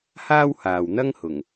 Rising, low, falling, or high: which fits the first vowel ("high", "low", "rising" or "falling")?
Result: high